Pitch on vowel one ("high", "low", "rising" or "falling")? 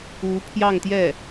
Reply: rising